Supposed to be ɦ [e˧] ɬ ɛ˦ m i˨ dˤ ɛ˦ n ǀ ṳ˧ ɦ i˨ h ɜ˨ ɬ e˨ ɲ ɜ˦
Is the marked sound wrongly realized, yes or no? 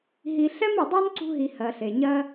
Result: yes